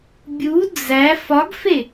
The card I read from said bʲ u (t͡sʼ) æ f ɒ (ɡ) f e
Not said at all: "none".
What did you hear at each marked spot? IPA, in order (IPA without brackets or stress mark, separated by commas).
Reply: d͡z, ɡ